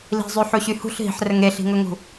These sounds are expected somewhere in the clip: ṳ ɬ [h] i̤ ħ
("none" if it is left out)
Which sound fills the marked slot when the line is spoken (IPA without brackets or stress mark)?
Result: ɦ